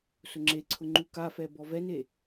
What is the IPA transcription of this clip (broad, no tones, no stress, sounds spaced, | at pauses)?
s ʊ ŋ͡ǁ e ǀʰ ʊ ŋ͡ǃ u k a f ɛ b ɔ v ɛ n e